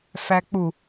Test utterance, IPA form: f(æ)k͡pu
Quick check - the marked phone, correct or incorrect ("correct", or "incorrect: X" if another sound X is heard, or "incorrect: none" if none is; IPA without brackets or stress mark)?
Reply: correct